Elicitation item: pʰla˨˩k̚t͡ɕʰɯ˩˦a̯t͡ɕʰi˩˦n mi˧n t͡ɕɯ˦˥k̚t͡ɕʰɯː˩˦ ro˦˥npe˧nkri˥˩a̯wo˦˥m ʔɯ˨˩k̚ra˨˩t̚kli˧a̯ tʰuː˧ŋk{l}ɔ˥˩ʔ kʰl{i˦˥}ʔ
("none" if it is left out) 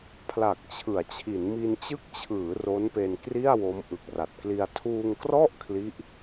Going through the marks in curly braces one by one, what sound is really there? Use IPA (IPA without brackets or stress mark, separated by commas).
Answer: r, i˦˥